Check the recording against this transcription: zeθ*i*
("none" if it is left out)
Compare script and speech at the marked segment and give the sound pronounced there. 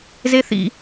ḭ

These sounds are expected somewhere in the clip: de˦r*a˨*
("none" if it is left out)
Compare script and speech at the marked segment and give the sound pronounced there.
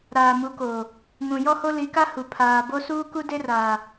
aː˨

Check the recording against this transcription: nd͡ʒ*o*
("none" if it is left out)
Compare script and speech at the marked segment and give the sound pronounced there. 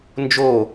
o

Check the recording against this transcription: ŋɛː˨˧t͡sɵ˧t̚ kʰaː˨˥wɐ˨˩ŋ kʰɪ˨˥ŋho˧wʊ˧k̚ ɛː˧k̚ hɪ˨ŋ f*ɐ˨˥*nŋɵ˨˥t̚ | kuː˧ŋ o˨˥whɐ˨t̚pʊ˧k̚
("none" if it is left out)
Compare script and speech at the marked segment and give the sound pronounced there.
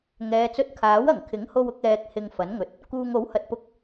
ɐ˨˥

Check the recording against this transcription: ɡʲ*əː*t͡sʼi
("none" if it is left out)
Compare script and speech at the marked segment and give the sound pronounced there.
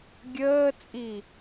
əː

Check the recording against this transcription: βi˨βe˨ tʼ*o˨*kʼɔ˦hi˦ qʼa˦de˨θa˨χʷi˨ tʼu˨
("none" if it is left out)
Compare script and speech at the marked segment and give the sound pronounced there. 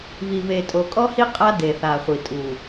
o˨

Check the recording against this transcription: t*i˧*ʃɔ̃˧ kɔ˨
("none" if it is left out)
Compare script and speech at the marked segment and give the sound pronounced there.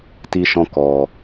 i˧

